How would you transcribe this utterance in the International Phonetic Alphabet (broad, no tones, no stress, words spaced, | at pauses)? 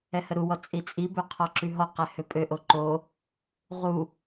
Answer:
ɛhəɾuwɔ t͡sʼit͡sʼibø qʰɔǁyɦɔqɛ høpʼøʔo ǃo | ʁu